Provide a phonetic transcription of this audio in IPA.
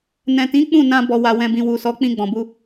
n ɛ̃˨ t ĩ˨˦ k͡p ũ˦˨ n ã˧ b ɔ˨ w a˨ w ɛ̃˨ b ĩ˨ w u˨ s ɔ˨˦ k͡p ĩ˧ ɡ͡b ɔ̃˨ b u˧

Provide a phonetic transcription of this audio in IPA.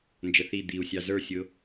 n d͡ʒ ə θ i d̪ i u̯ sʲ ɑ z ə˞ sʲ ʊː

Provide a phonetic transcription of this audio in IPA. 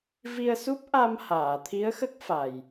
v i˧ ə̯ s u˦˥ p̚ ʔ a˧ m h aː˨˩˨ t̪ʰ i˧˥ ə̯ x ə˦˥ k̚ f a˨˩ j

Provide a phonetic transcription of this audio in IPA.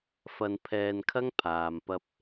f ɐ˧ n pʰ ɛː˧ n kʰ ɐ˥ ŋ pʰ aː˨ m p ɐ˧ p̚

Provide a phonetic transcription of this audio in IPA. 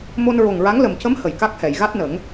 m o˧ n ɹ o˨˩ ŋ ɹ a˧˥ ŋ l ə˨˩ m c ə˧˥ m h ə˨˩ j k a˦˥ k̚ h ɛ˨˩˨ j ɣ a˦˥ t̚ n ə˨˩˦ ŋ

